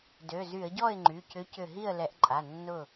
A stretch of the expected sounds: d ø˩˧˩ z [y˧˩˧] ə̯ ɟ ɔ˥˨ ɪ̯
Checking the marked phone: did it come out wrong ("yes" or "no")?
no